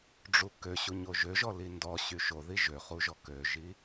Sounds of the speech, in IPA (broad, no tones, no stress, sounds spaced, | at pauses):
ɖ͡ʐ u k ø ɕ u ɲ o ʒ ø ʒ ɔ l i n d ɔ ɕ y ʃ o ð i ʒ ø χ u ʒ ɔ k ø ʒ i